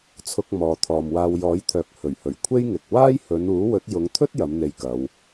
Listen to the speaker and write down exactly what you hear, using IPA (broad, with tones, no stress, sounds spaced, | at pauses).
t͡sʰ ʊ˧ k̚ m ɔː˨ t̪ʰ ɔː˨ m w aː˧ w j ɔː˨˥ j t̪ʰ œː˨ k̚ h ɵ˨˩ ɥ h ɵ˨˩ ɥ kʷʰ e˥ j ŋ ɪ˨ k̚ w aː˥ j h ɵ˨˧ n uː˨˥ w ɵ˨˥ t̚ j ʊ˨˧ ŋ t̪ʰ ɵ˥ t̚ j ɐ˨˥ m n̪ e˧ j k ɐ˨˧ w